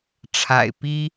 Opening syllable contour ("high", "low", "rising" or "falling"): low